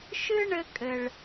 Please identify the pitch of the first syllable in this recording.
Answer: high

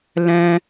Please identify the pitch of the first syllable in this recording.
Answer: high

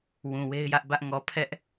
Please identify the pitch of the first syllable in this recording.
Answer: low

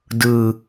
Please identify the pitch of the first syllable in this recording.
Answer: low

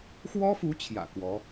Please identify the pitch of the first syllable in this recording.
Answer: high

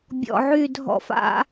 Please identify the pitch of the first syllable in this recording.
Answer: low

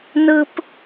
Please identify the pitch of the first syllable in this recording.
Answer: high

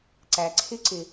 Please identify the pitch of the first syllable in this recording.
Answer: low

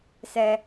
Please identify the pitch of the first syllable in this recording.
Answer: high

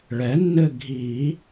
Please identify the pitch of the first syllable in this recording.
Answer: rising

